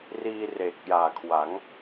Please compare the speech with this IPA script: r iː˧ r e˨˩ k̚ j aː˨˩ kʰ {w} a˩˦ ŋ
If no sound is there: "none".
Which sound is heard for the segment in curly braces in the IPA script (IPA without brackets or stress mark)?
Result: w